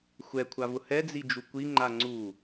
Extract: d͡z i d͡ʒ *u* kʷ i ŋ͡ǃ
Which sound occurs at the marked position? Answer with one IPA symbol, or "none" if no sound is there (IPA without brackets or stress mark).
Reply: u